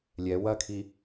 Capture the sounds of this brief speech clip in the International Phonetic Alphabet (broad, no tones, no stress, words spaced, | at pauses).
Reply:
lʲɛ wɐkʰi